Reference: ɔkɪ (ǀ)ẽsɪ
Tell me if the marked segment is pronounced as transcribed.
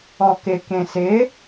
no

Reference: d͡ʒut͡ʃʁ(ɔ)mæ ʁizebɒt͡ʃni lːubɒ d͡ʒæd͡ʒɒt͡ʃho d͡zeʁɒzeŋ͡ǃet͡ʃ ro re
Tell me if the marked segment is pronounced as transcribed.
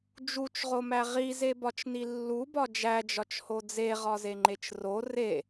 no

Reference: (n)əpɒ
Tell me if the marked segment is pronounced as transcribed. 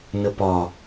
yes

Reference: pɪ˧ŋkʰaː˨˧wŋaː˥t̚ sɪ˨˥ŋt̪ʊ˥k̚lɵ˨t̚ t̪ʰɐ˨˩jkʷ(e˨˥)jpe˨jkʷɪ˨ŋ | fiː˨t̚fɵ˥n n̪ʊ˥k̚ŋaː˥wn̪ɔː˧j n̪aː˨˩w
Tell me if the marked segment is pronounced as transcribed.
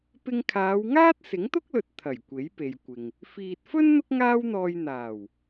yes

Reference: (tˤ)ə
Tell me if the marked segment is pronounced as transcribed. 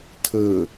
no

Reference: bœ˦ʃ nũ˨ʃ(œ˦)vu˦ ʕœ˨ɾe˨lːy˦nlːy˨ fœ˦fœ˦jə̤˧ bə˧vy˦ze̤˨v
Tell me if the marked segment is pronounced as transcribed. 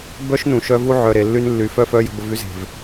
no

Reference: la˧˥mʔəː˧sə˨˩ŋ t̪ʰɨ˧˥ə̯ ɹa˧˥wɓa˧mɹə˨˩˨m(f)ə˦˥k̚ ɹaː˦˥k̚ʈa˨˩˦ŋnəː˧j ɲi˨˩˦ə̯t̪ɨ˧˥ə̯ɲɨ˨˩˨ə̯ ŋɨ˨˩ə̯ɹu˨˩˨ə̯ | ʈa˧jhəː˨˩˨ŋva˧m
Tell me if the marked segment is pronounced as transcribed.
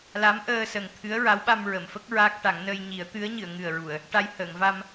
yes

